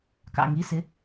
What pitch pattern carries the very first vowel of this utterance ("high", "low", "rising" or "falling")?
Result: falling